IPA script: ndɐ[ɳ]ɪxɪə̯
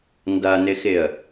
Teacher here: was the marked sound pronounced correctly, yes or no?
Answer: no